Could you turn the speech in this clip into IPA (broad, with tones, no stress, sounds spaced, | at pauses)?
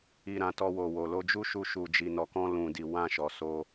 i˨ ɾ ã˨ t ɔ˧ w o˨ w o˨ l o˧ d͡ʒ u˦ ʃ u˧ ʃ u˨ d͡ʒ i˨ n ɔ˨ k ɔ̃˧ l ũ˨ d i˨ w ã˧ ʃ ɔ˨ s o˧